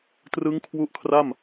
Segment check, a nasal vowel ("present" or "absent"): absent